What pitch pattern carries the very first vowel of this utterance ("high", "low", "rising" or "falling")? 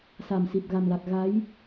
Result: low